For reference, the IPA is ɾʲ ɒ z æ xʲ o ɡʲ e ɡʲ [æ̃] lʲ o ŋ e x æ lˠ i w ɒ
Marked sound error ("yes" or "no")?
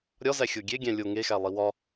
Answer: no